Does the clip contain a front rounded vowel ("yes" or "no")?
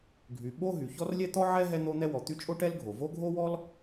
yes